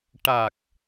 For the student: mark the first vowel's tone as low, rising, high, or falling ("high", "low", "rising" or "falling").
low